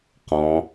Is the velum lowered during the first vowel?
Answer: yes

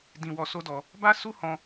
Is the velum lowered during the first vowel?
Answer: yes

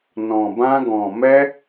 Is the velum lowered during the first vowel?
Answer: yes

